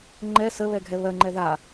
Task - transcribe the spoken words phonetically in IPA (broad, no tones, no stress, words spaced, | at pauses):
ŋ͡ǃɛ sə βɛɡʱɛβɜŋ͡ǃɛ ða